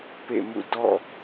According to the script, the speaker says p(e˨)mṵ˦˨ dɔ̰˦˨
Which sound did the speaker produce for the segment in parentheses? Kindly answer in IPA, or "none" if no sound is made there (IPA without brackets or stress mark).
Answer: ḛ˦˨